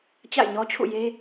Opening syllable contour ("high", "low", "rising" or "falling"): falling